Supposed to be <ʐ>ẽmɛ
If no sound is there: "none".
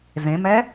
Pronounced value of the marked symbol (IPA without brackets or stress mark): z